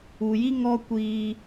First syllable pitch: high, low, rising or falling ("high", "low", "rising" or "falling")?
low